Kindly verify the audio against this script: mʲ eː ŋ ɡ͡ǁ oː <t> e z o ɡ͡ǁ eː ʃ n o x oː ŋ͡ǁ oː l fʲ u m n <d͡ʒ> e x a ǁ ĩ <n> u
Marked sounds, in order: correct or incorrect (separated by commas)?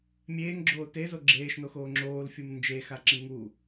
correct, correct, incorrect